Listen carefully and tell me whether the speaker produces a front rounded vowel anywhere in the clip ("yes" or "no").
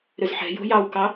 yes